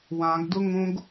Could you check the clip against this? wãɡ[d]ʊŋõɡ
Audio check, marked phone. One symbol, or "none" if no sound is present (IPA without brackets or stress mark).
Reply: d